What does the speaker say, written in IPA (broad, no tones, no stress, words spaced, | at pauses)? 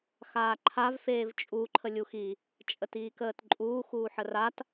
xaːǃʰav feːvt͡ʃʼu ǃʰəlʲuxi | t͡ʃʼətiːkəːtǃʼuː xuːħərat